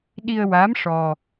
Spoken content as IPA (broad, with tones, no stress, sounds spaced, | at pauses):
ɗ i˧ ə̯ w a˧˥ m ʂ ɔ˧